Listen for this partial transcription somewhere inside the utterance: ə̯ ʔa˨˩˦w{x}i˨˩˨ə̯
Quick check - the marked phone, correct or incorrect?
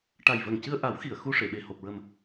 correct